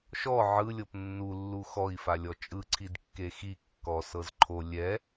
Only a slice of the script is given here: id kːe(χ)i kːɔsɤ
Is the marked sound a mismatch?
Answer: yes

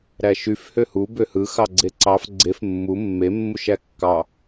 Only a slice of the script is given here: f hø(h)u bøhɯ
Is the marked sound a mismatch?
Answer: no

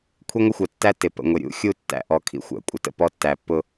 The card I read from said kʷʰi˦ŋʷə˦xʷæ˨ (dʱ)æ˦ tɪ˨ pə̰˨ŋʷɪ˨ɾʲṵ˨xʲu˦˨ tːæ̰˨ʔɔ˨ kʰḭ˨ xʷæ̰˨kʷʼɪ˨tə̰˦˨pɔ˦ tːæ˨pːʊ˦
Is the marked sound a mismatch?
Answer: yes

